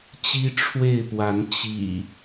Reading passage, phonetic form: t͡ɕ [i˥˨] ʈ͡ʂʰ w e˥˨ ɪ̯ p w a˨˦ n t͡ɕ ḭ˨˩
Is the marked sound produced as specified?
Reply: no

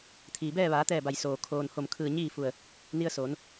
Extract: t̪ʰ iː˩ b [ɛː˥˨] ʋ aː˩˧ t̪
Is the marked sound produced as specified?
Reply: yes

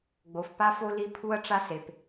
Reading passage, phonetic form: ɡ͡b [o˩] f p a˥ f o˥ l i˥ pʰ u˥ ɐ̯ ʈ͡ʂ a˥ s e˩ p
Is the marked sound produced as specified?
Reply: yes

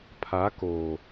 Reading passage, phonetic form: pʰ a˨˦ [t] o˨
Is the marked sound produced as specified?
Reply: no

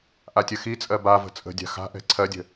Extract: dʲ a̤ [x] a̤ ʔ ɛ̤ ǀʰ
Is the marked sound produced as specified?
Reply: yes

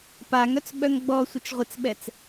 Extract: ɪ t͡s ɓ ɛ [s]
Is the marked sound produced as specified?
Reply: no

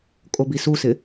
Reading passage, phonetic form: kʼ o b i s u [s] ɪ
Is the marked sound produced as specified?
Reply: yes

